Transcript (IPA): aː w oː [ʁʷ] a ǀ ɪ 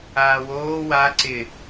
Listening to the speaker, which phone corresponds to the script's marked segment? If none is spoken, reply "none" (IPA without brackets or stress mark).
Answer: w